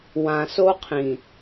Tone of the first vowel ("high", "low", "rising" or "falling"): low